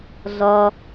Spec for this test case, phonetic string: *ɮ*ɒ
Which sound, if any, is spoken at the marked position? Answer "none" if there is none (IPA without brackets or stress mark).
ɮ